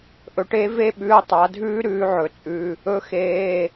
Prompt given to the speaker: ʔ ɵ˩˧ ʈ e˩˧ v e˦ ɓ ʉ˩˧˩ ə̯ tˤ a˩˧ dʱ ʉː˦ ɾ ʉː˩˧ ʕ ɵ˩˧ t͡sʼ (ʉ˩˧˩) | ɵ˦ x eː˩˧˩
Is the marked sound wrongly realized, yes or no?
no